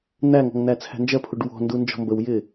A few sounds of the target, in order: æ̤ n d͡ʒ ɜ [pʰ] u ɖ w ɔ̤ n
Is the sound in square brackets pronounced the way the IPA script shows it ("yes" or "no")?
yes